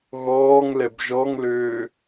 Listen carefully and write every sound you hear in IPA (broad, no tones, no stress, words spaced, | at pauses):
ɣɔːŋ lɛbʒɔŋløː